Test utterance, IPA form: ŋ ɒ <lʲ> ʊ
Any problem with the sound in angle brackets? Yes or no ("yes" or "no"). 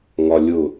no